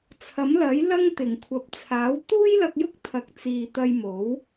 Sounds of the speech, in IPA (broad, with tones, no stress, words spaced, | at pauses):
t͡sʰɐ˨˥mlɐ˨˥jlɐ˥ŋt̪ɪ˨˩ŋ kʷʰɐ˨˥p̚t͡sʰaː˨˥w t̪uː˥jlɐ˧k̚jʊ˥k̚ t̪ʰɐ˨˥k̚t͡siː˨t̪ɐ˧jmo˨˥w